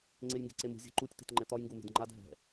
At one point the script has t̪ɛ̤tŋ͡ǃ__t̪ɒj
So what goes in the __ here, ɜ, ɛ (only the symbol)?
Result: ɛ